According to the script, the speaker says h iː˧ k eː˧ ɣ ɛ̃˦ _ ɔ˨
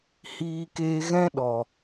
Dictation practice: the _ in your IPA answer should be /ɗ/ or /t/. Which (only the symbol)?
ɗ